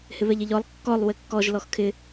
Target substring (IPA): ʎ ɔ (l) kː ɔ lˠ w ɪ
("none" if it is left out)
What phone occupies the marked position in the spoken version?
lˠ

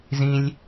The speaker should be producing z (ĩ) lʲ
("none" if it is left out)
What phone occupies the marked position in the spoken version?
ĩ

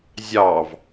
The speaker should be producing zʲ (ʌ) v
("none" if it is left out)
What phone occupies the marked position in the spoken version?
ɑ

